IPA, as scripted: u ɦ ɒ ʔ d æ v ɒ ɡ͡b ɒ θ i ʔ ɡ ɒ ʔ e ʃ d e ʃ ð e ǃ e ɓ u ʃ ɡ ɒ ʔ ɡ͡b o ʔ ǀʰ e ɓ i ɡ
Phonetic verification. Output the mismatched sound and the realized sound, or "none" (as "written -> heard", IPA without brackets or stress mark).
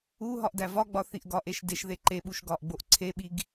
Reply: none